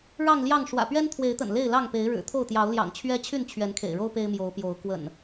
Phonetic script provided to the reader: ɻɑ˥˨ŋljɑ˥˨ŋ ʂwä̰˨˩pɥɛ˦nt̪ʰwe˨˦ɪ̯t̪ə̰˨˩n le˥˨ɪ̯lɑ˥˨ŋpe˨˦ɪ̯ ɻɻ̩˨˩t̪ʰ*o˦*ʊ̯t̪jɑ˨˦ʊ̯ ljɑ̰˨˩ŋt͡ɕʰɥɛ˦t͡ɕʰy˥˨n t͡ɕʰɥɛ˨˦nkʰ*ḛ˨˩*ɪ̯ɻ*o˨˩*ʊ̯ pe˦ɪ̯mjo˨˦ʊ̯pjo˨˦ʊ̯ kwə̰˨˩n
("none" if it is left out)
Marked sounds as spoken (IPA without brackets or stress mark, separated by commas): o˥˨, ḛ˨˩, o˦